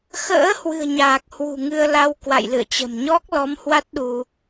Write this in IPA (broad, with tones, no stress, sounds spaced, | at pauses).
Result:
x ə̰ː˧˥ h w ɨ̤˨˩ ə̯ ɲ aː˨˩ k̚ h w ṳ˨˩ ŋ ɨ˧ ə̯ l a˧ w k w a̰˧˨ j l ɨ̰˧˨ ə̯ t͡ɕ ə̤˨˩ m ɲ ɔ˦˥ k̚ l ɔ˨˦ m h w a˦˥ t̚ ɗ u˧